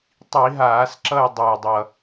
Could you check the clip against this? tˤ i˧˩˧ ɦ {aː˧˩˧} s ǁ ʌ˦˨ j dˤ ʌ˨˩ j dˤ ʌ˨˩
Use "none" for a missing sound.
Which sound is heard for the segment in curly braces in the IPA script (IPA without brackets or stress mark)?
aː˧˩˧